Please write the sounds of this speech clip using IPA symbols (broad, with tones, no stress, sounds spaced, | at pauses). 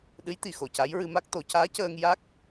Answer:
ɗ ɨ˧˥ j t̪ i˨˩˨ x o˨˩˨ c a˧˥ j ɹ ɨ˧ m a˦˥ k̚ t̪ o˨˩˦ c aː˧˥ c əː˧ ŋ j a˦˥ k̚